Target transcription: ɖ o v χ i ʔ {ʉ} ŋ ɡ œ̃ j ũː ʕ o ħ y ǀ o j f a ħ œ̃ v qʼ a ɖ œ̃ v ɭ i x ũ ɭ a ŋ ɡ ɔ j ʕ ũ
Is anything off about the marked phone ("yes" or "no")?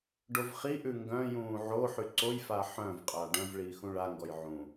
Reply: no